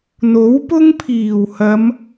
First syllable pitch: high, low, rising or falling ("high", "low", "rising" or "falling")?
rising